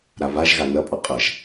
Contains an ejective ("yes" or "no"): yes